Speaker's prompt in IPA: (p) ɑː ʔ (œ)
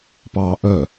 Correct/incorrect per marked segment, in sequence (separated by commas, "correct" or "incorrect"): correct, correct